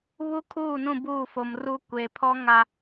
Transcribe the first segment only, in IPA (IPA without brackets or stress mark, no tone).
β